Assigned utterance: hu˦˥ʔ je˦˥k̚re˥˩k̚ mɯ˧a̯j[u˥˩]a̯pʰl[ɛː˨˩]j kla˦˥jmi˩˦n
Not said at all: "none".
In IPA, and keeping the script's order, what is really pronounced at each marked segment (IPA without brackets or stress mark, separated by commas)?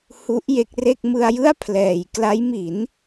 ɯ˥˩, ɛː˨˩